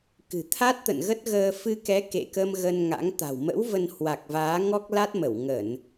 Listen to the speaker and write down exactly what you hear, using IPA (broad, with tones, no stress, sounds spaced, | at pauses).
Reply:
k ɨ̤˨˩ t̪ʰ a˦˥ t̚ t̪ ə̰˧˨ n ɣ ə˦˥ t̚ ɣ əː˧ f ɨ˧ k ɛ˨˦ k ḛ˧˨ k ə˧ m ɣ ə˧ n ŋ a̰˧˥ ŋ t̪ a̤˨˩ w m ə̰˧˥ w v ə˧ n h w a˨˩ k̚ v aː˨˦ ŋ ɔ˦˥ k̚ l a˦˥ t̚ m ə˧˩ w ŋ ə˧˩˨ n